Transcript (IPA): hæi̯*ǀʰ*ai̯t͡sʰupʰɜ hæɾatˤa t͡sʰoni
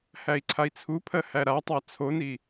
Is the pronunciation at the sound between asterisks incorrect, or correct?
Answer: correct